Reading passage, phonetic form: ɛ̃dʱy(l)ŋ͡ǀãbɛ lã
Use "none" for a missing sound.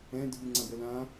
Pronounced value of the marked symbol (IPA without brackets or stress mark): none